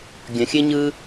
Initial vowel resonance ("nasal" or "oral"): nasal